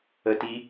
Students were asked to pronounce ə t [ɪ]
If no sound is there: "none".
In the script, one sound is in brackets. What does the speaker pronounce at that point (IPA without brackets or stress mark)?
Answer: i